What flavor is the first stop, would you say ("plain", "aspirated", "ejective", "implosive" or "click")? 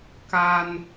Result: plain